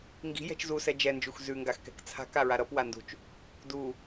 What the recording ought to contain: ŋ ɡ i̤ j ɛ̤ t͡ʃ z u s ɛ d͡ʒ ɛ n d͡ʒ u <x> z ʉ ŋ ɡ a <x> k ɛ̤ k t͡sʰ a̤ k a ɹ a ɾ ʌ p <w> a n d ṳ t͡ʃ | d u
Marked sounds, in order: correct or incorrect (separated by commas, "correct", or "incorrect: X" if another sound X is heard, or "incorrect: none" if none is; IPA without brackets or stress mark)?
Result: correct, correct, correct